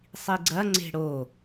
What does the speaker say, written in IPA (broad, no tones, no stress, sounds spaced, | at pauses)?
sˤ i ɡ͡ǀ ɐ ŋ͡ǀ e̤ ɽ o